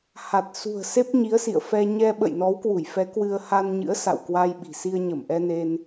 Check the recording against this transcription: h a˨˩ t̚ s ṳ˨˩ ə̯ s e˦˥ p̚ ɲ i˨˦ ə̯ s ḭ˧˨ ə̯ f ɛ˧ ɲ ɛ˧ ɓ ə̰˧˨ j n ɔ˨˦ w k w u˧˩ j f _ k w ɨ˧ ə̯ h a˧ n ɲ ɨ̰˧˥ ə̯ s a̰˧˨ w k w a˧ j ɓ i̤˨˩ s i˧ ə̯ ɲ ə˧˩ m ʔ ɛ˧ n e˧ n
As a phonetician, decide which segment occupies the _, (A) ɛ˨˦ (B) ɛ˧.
A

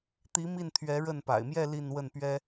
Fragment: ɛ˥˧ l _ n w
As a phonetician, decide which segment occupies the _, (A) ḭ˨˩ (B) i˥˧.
B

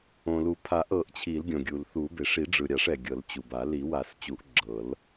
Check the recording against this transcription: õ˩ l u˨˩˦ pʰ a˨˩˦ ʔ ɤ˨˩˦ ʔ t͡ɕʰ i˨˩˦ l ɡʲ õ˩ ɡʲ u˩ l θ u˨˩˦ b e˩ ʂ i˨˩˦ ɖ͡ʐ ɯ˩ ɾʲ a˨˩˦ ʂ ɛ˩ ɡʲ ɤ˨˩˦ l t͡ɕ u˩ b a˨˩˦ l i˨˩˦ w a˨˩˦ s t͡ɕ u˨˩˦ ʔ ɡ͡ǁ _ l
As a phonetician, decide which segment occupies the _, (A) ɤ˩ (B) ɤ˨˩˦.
B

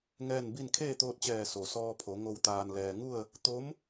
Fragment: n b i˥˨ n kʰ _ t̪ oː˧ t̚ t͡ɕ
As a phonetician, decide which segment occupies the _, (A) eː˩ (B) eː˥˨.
B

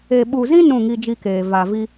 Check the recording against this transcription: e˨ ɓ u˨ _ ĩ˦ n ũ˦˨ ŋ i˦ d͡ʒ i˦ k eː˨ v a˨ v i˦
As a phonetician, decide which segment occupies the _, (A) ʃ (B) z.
B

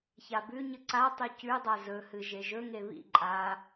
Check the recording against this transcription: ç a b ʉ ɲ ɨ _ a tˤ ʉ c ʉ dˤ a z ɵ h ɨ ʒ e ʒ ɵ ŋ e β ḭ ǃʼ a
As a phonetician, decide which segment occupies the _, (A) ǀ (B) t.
A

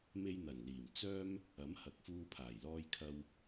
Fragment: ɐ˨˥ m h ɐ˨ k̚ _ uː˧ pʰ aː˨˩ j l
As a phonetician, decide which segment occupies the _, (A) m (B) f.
B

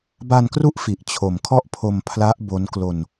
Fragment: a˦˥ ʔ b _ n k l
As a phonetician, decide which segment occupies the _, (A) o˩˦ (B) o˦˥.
B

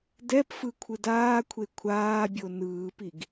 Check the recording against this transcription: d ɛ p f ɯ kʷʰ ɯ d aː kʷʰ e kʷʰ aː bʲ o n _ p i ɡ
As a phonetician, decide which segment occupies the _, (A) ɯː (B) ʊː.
A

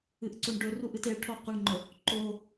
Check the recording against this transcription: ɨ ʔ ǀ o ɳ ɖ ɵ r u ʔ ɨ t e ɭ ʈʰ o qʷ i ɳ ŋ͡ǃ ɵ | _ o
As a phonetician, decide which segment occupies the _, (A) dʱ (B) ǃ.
B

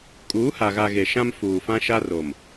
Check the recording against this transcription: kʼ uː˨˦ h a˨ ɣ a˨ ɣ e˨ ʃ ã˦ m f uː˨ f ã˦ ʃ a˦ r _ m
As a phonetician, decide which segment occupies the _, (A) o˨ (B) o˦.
A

